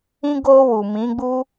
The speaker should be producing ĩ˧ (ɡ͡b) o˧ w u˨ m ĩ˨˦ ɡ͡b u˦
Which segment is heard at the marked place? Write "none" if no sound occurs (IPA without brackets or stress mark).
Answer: ɡ